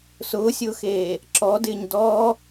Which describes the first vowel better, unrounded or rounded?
rounded